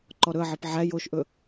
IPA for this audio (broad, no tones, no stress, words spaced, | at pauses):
ǃɔɾɵɐ̯ʕep ʕæ joʃʔɵ